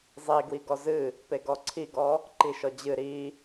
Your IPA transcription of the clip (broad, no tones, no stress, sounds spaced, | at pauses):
zˤ i ɡ w i ɡ ɔ z ɨ | p e ɡ ɔ ǀʰ i ɡ ɔ | ǃ i ʃ ɔ d͡ʑ ɨ ɾ i